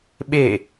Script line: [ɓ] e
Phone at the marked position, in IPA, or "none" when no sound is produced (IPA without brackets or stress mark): ɓ